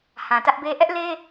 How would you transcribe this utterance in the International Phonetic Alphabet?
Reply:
h ã˨ t ä˦ ʔ b e˦ ʔ ɛ˦ ʔ l e˦

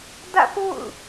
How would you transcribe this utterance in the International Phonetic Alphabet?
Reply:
d ä̰˦˨ p o̰˦˨ ʊ̯

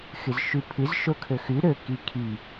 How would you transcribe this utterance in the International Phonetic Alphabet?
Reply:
x ɨ z ʃ ʉ pʰ ɨ z ʃ o kʰ ɵ x ʉ ɾ ɵ k i kʰ i

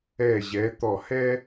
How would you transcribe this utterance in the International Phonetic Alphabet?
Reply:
ɛ˧˩ ʑ ɛ˩˧ t̪ ɔ˧˩ h ɛ˥

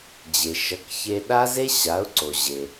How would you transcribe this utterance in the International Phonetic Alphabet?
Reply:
d͡ʑ e˩ ʃ ʌ˩˥ k ç e˧ ɗ a˥ z e˥ ɕ a˩˥ ʊ̯ ǀ o˩ ʑ e˩

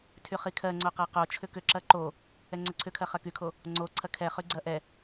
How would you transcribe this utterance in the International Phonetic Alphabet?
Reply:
tʰ y χ i kʰ ɜ ŋ͡ǀ o q ɐ q o t͡ʃʰ ʏ k ʏ ǁ ɐ ǃ o | ɛ ŋ͡ǀ ʏ ǀʰ ʏ kʰ ɜ χ ɐ k y kʰ o | ŋ͡ǀ o ǀʰ ɐ kʰ ɛ χ y ɡ͡ǀ ɐ ʔ ɛ

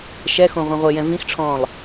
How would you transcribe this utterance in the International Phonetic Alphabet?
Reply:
ʃ ɛ x õ ʁʷ ɛ̃ ʁʷ e j ɛ̃ v ĩ x ʈ͡ʂʰ ɔ̃ː lˠ

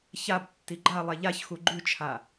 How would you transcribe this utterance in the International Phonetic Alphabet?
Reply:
ç a b tː i ɡ͡ǃ a lˠ ɛ ʎ a ç x u ɡ͡ǃ ʉ t͡ʃʰ a

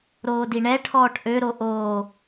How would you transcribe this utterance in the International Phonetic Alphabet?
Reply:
ɾ oː d i ɳ ɛ ʈʰ ɔː ʈ ʔ ø ɾ o ʔ oː

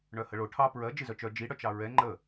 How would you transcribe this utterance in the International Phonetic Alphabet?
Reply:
ɳ œ h ə ɭ o ʈʰ ɑ p ɹ ɜ d͡ʒ ɨ z œ t͡ʃ œ d͡ʒ i ɽ œ t͡ʃ ɑ ɹ ɛ ŋ͡ǃ ə

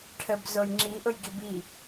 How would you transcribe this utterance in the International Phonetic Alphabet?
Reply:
ʈʰ ə b z o j ŋ͡ǁ i ʔ ʊ j ɡ i b i

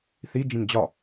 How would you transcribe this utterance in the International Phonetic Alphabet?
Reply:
θ i d͡ʒ ĩ n d͡ʑ ɒ

